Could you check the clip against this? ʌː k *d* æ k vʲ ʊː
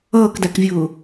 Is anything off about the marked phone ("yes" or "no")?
no